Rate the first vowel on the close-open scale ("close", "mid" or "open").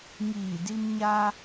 close